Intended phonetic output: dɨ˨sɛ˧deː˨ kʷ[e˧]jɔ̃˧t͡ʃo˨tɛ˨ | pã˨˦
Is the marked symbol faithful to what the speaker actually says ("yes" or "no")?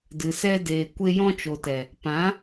yes